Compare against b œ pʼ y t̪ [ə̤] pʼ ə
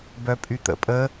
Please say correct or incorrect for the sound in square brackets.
incorrect